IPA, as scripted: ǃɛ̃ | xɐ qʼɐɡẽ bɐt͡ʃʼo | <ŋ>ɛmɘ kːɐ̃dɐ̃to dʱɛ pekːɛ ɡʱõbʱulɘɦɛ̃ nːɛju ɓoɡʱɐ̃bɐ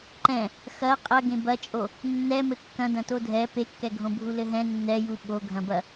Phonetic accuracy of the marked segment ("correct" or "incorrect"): incorrect